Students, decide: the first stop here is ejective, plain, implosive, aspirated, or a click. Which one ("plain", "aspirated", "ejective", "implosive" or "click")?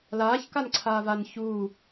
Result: plain